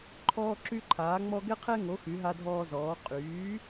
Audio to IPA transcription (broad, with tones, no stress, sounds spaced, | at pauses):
ǃʰ ɔː˦ ǁ y˦ ǃʰ aː˨˥ ŋ͡m ɔ˦ ɡ ɛ˦ qʰ ɛ˦ ŋ o˨˥ x y˨˥ ɦ a˦ dʱ ɔː˦ z ɔː˨˥ qʼ yː˨˥